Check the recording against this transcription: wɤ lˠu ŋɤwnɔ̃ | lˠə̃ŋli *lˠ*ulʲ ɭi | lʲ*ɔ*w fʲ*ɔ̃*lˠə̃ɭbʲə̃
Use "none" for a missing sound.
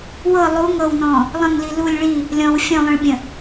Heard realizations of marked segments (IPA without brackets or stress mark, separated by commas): l, ɔ̃, ɔ̃